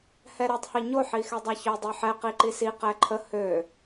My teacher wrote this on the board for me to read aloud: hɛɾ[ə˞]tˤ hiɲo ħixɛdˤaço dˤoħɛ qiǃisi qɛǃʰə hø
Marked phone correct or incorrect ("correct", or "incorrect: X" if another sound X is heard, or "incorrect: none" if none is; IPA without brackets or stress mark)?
incorrect: ɜ